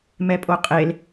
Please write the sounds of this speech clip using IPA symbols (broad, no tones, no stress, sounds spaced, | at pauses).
m ɛ pʼ o qʼ e l